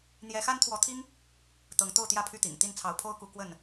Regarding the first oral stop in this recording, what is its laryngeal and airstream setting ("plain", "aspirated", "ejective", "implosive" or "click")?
aspirated